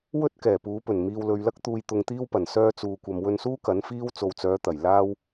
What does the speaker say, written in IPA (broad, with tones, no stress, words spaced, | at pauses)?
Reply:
wɵ˥t̚ kɛː˨˩puː˨˥pɵ˨˩n miː˨wlɵ˨ɥlɐ˥k̚ t̪uː˧jt̪ʊ˧ŋt̪iː˥wpɐ˨˩n sœː˧t͡suː˨kʷɐ˨m wɵ˧nsuː˥ kɐ˨˥nfiː˥w t͡so˨wt͡sœː˨˧t̪ɐ˨˩j laː˥w